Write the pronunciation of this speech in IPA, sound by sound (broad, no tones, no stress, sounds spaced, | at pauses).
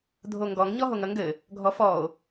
dʱ o ŋ ɡ ɔ ŋ ɲ ɔ ɦ o ŋ ɐ ŋ ɡ ɘ | ɡʱ ɔ f ɔ o̯